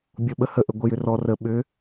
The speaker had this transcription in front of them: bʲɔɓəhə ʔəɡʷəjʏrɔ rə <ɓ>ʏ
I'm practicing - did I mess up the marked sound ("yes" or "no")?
no